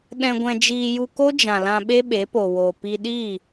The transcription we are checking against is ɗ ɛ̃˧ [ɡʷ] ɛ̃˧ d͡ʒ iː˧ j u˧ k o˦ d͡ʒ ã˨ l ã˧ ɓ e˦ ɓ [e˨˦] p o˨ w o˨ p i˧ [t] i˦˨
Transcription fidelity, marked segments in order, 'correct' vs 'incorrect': correct, correct, incorrect

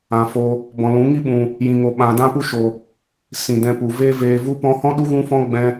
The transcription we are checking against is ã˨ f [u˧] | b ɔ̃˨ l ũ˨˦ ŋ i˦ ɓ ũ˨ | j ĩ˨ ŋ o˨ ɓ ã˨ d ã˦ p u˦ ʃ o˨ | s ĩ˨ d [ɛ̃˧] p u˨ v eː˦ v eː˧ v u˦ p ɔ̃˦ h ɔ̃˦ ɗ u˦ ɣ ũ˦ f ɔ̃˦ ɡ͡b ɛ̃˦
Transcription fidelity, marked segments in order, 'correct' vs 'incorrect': incorrect, correct

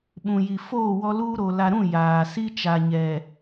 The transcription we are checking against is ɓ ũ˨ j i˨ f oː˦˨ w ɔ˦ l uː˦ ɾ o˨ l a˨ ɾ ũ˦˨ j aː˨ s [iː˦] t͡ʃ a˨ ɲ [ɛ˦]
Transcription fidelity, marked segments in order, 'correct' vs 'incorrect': incorrect, incorrect

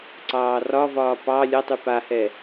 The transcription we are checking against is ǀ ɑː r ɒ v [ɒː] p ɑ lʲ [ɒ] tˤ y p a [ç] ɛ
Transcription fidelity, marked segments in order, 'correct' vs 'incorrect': correct, incorrect, incorrect

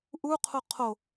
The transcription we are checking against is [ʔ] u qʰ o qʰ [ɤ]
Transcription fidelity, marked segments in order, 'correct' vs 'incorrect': correct, incorrect

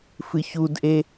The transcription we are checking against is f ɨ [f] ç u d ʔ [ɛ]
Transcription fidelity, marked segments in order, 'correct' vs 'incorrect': incorrect, incorrect

